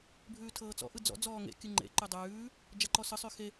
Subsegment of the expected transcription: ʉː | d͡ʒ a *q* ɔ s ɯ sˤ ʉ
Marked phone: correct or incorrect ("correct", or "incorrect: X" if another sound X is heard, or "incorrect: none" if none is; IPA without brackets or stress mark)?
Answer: incorrect: ǃ